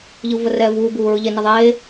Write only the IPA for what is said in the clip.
ʎ ɯ v ə r ɛ v uː b uː ɹ ɯ ʎ e n ə ðˤ eː

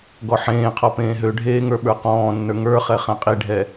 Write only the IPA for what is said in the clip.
ɡ ɔ ħ ẽː qʰ ɔ p ẽː ɦ ø ɖʱ eː ŋ ə˞ ɓ ə˞ q ɔ̃ː nː ə˞ ŋ ə˞ χ ɛ χ ɛ̃ qʼ i ɖʱ ɛ

